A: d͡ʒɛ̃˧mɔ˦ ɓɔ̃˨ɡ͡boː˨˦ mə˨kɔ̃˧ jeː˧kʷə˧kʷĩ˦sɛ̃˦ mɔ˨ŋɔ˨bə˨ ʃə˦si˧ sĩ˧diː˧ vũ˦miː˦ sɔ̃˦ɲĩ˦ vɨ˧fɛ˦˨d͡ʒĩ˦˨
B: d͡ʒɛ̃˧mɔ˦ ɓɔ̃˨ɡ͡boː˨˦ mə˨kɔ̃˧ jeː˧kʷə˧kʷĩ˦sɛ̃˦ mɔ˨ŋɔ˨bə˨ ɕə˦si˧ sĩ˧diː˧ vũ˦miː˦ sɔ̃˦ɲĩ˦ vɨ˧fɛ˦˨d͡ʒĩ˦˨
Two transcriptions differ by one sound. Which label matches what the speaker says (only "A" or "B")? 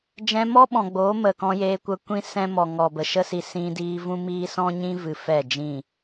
A